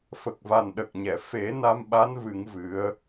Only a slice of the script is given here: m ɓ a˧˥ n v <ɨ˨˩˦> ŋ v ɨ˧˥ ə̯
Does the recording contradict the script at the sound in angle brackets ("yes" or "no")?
no